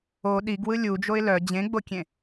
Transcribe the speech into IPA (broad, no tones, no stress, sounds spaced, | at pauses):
o ɗ i ɡ w ɯ lʲ u d͡ʒ o ɪ̯ l œ d͡ʑ ẽ ɡ͡b o kʲ ẽ